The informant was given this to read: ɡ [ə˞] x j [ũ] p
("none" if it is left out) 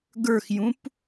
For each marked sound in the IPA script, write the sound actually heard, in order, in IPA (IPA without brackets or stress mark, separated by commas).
ə˞, ũ